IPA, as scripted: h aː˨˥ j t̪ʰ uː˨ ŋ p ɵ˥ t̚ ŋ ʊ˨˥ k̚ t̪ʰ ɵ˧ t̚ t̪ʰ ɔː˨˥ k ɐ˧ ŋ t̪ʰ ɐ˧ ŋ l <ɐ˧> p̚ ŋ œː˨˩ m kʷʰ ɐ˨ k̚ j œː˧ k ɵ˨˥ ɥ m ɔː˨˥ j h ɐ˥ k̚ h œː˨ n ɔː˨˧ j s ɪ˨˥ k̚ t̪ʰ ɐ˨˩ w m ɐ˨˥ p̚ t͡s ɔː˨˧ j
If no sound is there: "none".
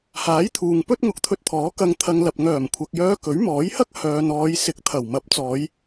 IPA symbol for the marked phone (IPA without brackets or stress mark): ɐ˨